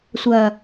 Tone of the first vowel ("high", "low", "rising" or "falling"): low